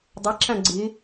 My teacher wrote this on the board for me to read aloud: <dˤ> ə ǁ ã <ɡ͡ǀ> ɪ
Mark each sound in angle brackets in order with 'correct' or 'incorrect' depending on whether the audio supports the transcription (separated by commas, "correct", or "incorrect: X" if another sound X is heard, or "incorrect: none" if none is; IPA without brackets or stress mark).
correct, correct